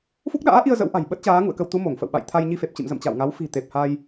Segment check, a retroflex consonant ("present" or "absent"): absent